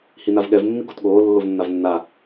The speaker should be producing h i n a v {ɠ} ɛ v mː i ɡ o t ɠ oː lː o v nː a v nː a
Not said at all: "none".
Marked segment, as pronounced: ɠ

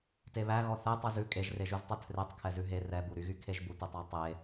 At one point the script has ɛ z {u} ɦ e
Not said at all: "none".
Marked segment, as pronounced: ʉ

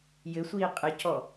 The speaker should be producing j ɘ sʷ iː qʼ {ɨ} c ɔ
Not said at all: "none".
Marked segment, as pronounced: ɨ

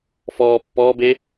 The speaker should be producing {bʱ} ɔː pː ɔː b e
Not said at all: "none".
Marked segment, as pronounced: f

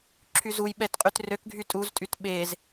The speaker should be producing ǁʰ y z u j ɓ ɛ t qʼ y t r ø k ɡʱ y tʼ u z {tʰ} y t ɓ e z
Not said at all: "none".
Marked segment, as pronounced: tʼ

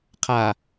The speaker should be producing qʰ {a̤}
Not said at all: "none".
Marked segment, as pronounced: a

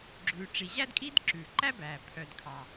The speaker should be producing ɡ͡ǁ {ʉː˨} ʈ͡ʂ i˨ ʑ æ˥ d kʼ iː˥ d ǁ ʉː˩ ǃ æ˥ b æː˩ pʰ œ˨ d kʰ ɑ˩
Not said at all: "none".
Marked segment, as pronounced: ʉː˨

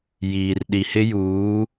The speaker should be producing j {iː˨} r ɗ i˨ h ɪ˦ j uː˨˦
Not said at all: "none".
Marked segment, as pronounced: iː˨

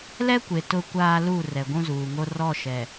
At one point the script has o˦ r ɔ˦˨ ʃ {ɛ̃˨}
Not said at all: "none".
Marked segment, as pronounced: ɛ˨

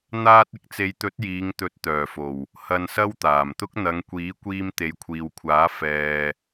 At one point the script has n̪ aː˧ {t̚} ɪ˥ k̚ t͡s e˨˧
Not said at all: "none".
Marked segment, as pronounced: t̚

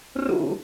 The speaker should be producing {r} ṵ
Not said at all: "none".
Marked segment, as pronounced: r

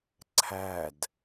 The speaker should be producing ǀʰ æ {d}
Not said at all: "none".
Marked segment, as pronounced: d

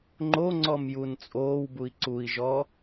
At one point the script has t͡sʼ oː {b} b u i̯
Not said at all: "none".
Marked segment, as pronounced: w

